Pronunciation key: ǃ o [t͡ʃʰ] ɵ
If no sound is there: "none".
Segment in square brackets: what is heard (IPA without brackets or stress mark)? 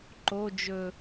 d͡ʒ